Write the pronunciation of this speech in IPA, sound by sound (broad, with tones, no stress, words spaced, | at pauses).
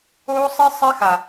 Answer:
oː˦sˤi˦ sˤɛ˦xa˨